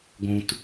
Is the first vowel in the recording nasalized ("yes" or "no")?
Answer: yes